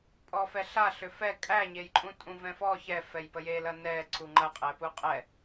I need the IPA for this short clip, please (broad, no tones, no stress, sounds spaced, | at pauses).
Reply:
pʼ ɔ f ɛ ɬ a ɬ ʏ f ɛ kʼ æ ɲ e j ǃʼ ũ tʼ ũ v ɛ̃ f ɔ ç ɛ f ɛ j p ə j e l ɐ n ɛ ǀʰ u ŋ͡ǃ ɐ qʼ ɛ p u qʼ ɛ